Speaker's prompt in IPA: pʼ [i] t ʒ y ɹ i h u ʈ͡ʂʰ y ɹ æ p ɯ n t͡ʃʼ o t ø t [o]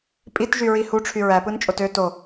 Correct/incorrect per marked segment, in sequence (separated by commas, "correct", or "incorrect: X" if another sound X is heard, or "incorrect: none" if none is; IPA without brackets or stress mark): correct, correct